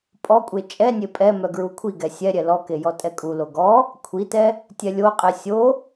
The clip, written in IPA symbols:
pʼ ɔ kʷʼ e t͡ʃʼ ɛ nʲ e pʼ ɛ m œ ɡ ɹ u kʷʰ i ɡ ɛ sʲ ɛ ɾʲ ɛ l ɔ k e j ɔ tʼ ɛ kʼ u l o ɡ ɔ | kʷʰ i t ɛ | tʲ ɛ lʲ o qʼ e sʲ o

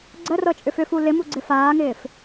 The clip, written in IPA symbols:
ɡ͡ǀ ə r ɤ t͡ʃʼ ʏ f ʏ f u l ɪ m u ɡ͡ǀ ɪ f aː ŋ ɪː f

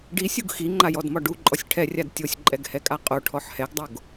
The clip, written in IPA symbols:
ɖ i sʲ u ɡ x i ŋ͡ǃ a j ɔ d m ɒ ɖ u ǃʼ ɔ sʲ ʈʰ ɛ rʲ a d tʲ o sʲ ǃʼ ɛ ɡ h ɛ kʼ a qʼ o ʈʰ ɔ ħ h ɛ ɡ dˤ o ɡ

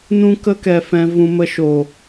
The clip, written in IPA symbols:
n ũ˧ k ə˧ k ɛ˨ f ɛ̃˨ v ũ˧ m ə˦ ʃ o˨

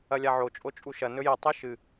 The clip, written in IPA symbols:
ɐ lʲ a ʕ o t͡ʃʼ o t͡ʃʼ u ʃ ɐ n ɵ j i tˤ i ʃ ɨ

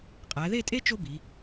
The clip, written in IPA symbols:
qʼ æ˩˧ ð e˥˧ tʼ e˥ t͡ʃ o˥ b i˩˧

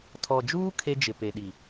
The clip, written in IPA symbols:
tʰ ɔ˨ d͡ʒ uː˦ kʰ e˦ d͡ʒ ɪ˨ p e˨ ɗ i˨

